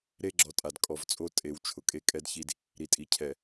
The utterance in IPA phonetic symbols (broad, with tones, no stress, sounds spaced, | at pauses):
ɾ e˦ ɡ͡ǁ ɔ˨ tʼ a˨ d kʼ ɔ˨ v t͡sʼ o˦ tʼ e˨ w t͡ʃʰ ʊ˨ kʼ e˦ kʼ ɛ˦ d ç i˦ d | ɾ i˨ tʼ i˨ cʰ ɛ˨